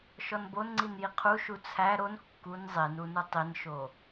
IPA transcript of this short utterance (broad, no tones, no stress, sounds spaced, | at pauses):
ʃ ɔ n b o n ŋ͡ǀ i n j i qʰ u ʃ u t͡sʰ æ ɾ o n kː u n zˤ i n u n u tˤ i n ʃ o